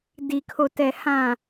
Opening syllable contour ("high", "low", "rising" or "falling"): low